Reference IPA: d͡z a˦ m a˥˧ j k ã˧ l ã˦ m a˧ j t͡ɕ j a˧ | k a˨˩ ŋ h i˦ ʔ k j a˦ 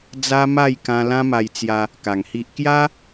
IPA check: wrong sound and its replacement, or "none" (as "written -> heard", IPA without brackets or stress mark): t͡ɕ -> t͡s